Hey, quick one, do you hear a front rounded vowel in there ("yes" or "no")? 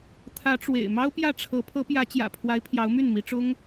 yes